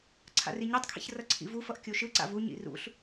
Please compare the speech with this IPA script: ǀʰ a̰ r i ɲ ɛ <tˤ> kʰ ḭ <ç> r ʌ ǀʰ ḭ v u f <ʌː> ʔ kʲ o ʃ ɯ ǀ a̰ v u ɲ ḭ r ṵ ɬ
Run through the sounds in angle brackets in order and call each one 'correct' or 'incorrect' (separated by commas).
correct, correct, incorrect